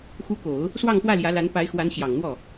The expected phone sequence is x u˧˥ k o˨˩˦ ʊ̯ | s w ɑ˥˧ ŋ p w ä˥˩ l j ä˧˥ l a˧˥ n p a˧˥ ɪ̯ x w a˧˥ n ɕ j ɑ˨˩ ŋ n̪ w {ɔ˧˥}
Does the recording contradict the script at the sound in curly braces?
yes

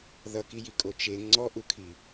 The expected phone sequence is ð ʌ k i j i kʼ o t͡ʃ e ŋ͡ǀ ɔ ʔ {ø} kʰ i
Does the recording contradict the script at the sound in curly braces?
yes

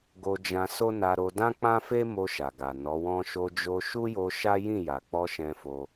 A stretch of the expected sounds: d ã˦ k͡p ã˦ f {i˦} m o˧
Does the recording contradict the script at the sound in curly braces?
yes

